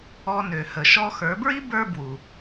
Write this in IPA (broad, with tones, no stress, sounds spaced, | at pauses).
ɔ˧ n ø˩ h ə˩ ʃ ɔ˧ x ə˞˩˧ b ɹ i˥ b ə˞˥ b w u˩